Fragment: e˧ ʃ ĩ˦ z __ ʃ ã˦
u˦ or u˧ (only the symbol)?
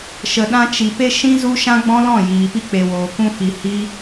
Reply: u˦